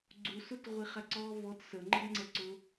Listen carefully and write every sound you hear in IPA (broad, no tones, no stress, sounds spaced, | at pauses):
ɡ͡ǀ u s ʊ t ʁʷ i χ æ ǀ ɔː v ɔ t s ə ŋ͡ǃ ə b ŋ͡ǀ ɛ ǀ ʊ